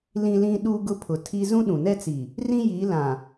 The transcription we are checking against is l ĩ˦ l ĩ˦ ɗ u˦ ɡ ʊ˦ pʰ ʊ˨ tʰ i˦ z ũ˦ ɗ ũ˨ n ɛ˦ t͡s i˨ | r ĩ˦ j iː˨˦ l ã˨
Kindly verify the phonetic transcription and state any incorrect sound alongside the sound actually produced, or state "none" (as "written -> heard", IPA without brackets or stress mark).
none